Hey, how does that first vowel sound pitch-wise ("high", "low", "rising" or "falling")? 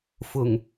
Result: low